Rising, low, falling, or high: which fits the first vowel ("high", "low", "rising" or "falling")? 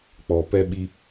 low